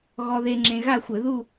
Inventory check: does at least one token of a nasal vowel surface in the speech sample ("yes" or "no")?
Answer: yes